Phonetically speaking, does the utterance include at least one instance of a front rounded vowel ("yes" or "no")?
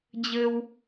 no